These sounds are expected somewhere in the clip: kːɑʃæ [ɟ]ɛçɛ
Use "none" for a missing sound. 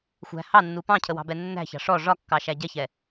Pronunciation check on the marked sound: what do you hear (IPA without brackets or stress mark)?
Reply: ɟ